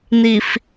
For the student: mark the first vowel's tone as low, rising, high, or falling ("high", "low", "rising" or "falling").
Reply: low